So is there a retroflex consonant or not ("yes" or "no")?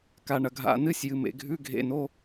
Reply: yes